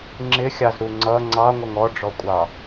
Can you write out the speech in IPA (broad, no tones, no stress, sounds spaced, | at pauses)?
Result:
ŋ͡ǁ ɪ xʲ ɑ z ɾ u ŋ͡ǀ ʌ ŋ͡ǀ ɑ ŋʷ ʌ ŋ ɔ ɖ͡ʐ ɔ kʷʼ ɑ